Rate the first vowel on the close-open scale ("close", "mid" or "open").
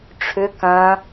close